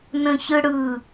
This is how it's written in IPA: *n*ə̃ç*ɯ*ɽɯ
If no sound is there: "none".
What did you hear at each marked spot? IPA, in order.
n, ɯ

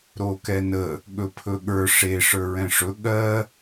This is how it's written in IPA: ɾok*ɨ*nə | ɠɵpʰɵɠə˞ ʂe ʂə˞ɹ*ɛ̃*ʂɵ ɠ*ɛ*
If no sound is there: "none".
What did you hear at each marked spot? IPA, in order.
ɛ, ɛ̃, ɜ

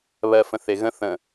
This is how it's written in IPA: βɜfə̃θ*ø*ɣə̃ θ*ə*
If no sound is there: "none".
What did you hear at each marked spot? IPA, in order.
e, ə̃

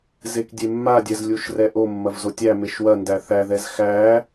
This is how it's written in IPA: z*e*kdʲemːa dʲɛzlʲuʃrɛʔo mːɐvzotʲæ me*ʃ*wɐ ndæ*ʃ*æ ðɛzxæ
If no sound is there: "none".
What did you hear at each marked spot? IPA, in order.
e, ʃ, θ

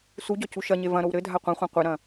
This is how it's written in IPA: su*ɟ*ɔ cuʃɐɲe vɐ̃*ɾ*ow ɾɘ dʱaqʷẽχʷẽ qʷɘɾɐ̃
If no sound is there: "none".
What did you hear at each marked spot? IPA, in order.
ɟ, ɾ

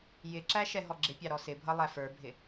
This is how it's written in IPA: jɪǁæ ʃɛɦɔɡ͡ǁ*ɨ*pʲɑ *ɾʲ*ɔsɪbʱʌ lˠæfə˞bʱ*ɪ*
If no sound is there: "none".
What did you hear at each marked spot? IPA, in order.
ɪ, ɾ, ɪ

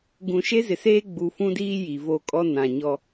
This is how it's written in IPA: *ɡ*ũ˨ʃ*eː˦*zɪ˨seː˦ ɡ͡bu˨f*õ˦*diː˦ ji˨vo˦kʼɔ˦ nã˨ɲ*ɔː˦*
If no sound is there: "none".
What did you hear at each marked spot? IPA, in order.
ɡ, e˦, ũ˦, ɔ˦

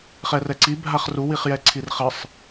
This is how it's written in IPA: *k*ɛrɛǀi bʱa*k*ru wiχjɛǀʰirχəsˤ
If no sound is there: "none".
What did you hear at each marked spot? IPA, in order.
χ, χ

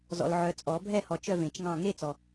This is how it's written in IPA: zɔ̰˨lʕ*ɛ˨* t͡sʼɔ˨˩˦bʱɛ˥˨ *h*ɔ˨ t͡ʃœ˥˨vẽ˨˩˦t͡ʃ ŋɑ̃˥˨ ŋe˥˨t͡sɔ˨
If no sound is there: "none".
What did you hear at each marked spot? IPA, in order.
œ˨, h

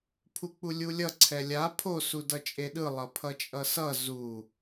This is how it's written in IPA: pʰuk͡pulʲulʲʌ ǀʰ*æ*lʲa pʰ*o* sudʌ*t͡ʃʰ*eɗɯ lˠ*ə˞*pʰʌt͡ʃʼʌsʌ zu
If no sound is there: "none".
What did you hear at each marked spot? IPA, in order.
ɛ, o, t͡ʃʼ, ʌ

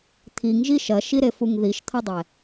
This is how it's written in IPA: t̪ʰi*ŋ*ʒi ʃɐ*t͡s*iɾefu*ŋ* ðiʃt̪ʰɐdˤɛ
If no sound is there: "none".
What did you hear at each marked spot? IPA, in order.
ŋ, ʃ, ŋ

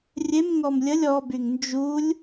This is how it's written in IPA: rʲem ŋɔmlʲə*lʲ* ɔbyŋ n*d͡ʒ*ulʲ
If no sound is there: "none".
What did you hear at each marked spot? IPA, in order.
lʲ, d͡ʒ

